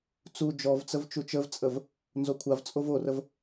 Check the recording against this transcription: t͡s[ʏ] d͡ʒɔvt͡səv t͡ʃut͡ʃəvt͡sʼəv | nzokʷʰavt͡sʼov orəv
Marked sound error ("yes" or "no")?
yes